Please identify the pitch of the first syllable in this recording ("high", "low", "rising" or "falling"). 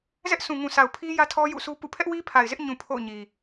high